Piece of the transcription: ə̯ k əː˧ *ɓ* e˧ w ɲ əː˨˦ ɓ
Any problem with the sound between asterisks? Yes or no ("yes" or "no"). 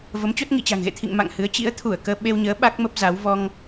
no